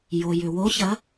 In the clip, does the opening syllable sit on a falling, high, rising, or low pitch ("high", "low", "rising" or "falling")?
low